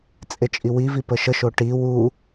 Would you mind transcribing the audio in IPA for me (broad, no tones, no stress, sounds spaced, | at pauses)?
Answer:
t͡sʼ e t͡ʃʼ i w i v i p ə ʃ ə ʃ o ʈ i w u